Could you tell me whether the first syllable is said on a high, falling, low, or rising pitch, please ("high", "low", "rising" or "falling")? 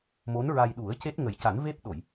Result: rising